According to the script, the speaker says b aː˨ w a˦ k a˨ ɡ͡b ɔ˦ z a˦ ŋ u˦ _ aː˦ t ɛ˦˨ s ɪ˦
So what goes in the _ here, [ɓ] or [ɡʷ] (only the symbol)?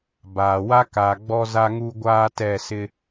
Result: ɡʷ